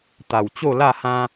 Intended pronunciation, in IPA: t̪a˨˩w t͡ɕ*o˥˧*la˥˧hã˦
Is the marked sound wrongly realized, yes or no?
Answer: no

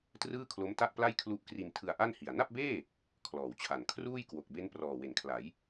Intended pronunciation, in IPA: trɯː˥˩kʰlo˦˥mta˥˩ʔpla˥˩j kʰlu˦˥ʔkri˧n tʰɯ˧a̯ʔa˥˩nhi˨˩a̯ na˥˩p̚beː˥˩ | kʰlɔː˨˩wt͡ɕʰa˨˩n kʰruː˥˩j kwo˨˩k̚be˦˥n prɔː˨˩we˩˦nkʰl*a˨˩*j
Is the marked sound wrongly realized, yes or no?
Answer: yes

